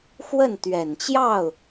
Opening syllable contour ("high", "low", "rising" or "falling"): falling